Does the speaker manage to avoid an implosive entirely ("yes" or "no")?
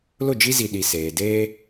no